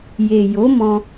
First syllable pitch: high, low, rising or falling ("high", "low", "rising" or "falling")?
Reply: low